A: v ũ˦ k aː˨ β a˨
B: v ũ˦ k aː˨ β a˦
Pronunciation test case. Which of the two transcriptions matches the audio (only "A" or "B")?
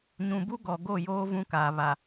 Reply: A